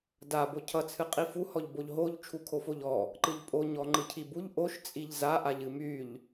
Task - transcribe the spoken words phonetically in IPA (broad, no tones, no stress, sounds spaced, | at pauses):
d a b o cʰ ʌ t͡sʰ ɨ qʼ i f u h ɔ ʎ b o ʎ ɦ o ʎ t͡ʃʰ u kʰ o f o ʎ ɔ | ǃ ɨ ʎ pʼ o ɲ ɔ ŋ͡ǃ ɯ cʰ i b u ʎ ʔ o ʃ t͡sʼ i ʎ z a ʔ a ʎ ɨ m y ʎ